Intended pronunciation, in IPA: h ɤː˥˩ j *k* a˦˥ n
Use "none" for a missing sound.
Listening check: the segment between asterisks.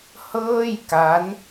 k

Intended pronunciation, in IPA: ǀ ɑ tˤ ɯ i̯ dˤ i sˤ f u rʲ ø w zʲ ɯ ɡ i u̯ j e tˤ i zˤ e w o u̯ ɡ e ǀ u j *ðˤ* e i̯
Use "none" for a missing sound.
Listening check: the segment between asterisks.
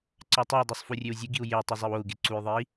ðˤ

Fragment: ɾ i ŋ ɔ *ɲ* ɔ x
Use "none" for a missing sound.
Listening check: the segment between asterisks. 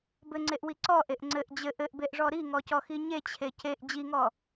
c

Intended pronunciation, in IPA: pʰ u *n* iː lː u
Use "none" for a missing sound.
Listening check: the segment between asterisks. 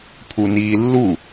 n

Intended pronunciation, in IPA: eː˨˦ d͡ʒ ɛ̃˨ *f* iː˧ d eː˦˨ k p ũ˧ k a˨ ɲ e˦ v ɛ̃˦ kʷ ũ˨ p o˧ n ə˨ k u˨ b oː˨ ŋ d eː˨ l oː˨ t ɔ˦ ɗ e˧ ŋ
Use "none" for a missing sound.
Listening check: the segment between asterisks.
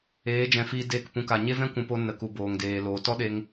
f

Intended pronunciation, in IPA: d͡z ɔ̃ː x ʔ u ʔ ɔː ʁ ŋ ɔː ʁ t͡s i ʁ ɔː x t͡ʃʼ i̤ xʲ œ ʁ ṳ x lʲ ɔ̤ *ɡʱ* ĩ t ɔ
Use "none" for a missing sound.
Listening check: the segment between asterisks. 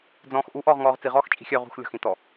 x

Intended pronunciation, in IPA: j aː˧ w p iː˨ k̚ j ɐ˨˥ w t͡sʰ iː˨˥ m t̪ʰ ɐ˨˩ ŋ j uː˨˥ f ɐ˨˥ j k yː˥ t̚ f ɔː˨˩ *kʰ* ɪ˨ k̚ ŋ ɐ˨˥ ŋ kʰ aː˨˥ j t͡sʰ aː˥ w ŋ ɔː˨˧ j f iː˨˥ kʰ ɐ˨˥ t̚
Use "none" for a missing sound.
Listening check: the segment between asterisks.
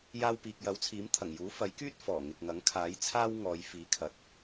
ŋ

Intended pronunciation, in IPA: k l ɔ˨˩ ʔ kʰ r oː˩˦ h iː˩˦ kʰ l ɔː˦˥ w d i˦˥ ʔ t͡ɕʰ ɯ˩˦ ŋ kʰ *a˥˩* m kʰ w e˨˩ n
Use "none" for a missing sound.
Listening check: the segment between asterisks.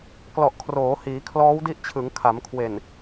a˩˦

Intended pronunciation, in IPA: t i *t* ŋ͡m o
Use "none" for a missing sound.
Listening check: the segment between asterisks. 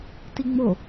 none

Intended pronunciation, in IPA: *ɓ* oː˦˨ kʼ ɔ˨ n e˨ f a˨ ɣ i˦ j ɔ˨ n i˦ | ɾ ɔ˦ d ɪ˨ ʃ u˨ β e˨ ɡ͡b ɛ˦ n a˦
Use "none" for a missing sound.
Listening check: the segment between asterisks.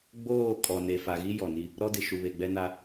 ɡ͡b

